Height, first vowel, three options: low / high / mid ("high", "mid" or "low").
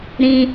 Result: high